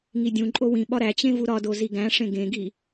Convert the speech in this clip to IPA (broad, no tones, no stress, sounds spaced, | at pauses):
ŋ i dʲ ũ ǃʼ o w ĩ ɓ ɒ ɾ æ t͡ɕ ẽ v u ɾ ɒ d o z i ɡ æ̃ ʂ ẽ ɡ ẽ ɡ i